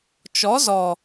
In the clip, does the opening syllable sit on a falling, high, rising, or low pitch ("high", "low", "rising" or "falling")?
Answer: rising